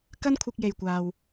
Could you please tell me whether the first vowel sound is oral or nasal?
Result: oral